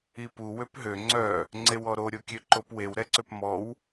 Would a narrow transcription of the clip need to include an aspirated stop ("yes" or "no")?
no